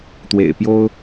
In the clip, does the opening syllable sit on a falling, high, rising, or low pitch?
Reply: low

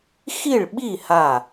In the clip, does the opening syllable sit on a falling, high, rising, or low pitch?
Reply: falling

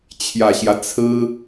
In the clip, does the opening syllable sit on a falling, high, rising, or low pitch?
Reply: low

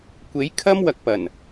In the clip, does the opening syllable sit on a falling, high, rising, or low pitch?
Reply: rising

